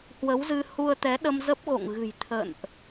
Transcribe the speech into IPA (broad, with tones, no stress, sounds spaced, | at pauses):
h w ə˨˦ w z ɨ˧ h u˧ ə̯ t̪ ɛ˨˦ ɗ ə˧ m z ə˦˥ p̚ ɣ o̰˧˨ ŋ ɣ ɨ̤˨˩ j t̪ʰ ə̰˧˨ n ʔ